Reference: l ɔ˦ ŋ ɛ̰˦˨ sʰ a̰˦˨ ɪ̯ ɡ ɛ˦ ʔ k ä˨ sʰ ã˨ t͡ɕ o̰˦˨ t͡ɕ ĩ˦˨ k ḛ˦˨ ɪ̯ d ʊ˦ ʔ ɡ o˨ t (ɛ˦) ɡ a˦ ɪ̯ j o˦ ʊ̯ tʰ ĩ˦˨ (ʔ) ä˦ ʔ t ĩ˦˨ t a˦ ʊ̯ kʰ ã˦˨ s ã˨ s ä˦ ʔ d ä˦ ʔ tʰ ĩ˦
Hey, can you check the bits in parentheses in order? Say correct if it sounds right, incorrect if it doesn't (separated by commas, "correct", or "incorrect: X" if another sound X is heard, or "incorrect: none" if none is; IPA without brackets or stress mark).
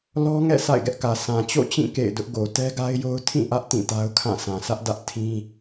correct, correct